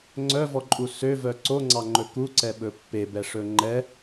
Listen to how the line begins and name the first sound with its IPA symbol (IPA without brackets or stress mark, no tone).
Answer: ŋ͡ǀ